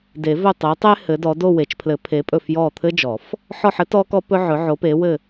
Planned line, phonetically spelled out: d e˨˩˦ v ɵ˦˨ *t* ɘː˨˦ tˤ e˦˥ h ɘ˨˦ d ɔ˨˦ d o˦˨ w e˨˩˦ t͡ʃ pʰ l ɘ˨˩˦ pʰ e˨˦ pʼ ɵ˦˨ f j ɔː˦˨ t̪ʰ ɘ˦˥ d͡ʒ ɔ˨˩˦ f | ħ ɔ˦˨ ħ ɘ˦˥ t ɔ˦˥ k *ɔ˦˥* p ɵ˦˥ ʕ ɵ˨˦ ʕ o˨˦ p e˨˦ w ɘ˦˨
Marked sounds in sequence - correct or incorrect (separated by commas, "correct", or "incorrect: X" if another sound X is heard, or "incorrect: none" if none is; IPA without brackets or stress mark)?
incorrect: tˤ, correct